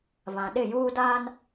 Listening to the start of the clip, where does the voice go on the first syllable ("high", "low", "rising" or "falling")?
low